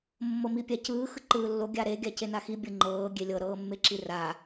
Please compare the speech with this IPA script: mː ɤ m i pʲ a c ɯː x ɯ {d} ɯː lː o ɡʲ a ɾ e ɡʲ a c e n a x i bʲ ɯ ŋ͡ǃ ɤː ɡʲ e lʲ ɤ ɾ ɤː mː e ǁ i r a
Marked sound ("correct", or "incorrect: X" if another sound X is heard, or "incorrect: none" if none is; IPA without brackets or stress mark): incorrect: ǃ